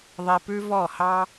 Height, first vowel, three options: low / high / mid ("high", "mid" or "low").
high